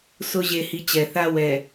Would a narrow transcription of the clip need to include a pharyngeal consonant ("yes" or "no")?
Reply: no